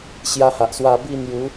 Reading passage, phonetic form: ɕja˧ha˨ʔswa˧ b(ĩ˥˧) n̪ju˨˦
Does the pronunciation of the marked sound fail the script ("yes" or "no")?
yes